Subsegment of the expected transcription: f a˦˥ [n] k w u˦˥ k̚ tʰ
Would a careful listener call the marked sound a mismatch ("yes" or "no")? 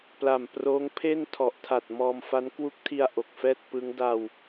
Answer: no